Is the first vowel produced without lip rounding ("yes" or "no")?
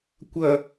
yes